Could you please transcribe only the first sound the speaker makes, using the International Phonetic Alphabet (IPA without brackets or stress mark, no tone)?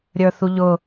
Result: ɾʲ